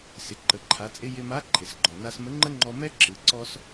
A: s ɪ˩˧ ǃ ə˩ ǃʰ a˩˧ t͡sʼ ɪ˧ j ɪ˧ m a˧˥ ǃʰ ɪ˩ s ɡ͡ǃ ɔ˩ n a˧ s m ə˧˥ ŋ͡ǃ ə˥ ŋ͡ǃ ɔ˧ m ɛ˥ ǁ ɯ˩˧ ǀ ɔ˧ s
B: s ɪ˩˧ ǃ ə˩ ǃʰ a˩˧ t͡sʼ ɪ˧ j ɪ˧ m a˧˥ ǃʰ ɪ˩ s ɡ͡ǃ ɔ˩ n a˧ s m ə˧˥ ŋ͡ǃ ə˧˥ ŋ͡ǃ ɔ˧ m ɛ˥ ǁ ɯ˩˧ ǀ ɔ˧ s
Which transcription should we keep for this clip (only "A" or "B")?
A